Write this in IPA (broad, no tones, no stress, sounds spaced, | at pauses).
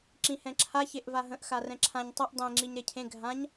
ǁ ĩ h ɛ̃ ǁʰ a ç e ʔ v a ɦ ə̃ ʔ x a r ɛ̃ ǁʰ ã ɲ tˤ ɛ ʔ dˤ ẽ ŋ͡ǁ i ɲ ɾ e cʰ ẽ ɡʱ ã ɲ